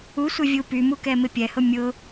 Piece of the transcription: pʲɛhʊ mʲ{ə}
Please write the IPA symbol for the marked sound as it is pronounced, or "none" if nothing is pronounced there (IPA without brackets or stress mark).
ʊ